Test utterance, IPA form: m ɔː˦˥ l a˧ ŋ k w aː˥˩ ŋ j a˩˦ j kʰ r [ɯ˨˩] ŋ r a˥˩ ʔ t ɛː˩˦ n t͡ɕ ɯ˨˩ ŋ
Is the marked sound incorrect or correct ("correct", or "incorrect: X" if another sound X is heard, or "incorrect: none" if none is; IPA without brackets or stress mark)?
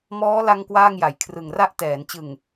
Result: correct